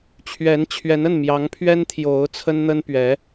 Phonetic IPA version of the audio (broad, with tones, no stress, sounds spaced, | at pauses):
t͡ɕʰ ɥ ɛ˧˥ n t͡ɕʰ ɥ ɛ˧˥ n ə˥˩ n m j ɑ˧˥ ŋ pʰ ɥ ɛ˥ n t̪ʰ j o˧˥ ʊ̯ t͡sʰ ə˥ n n̪ ə˥ n p ɥ ɛ˧˥